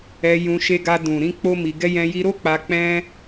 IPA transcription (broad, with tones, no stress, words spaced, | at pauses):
ɛ˧jũ˧ ʃe˧ɡa˧ dũ˨ɾĩ˧ k͡po˦mi˧ɡɛ˦jɛ̃˦ ji˧ɾo˦ k͡pa˧k͡pɛ̃˦